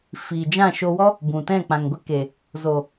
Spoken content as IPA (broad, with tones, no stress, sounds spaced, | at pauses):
f iː˨ d͡ʒ ã˦˨ ʃ o˧ w ɔ˦ | b ũ˨ t ɛ̃˦˨ k͡p ã˨ ŋ ɡʷ ɛ˦ k e˨ | z oː˨